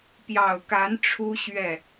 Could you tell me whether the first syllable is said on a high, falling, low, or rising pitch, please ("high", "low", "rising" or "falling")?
low